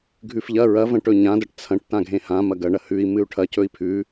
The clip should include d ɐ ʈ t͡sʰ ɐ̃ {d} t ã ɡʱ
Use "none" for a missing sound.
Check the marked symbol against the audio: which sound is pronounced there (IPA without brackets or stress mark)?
ʈ